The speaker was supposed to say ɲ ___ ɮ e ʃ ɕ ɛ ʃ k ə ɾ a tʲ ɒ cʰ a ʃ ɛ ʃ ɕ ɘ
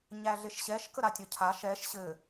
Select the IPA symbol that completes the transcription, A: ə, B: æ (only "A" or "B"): B